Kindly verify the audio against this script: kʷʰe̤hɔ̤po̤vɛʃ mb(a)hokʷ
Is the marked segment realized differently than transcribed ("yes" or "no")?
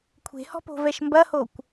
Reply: yes